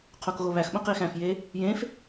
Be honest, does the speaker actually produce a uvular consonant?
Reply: yes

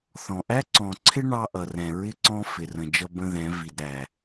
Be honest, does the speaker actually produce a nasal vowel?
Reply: yes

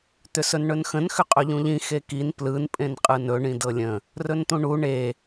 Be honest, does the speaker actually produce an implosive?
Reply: no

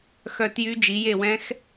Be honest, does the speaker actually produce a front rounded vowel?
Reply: yes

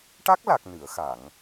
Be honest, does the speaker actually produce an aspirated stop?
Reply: no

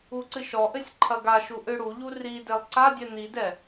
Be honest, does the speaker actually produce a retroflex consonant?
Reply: yes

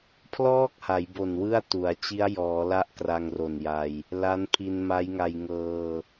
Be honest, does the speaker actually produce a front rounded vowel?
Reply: no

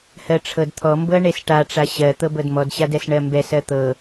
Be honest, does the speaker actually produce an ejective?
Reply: no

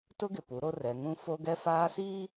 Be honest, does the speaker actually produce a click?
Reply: no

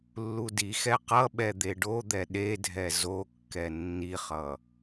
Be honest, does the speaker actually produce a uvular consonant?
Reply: yes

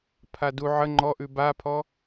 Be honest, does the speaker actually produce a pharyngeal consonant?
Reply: yes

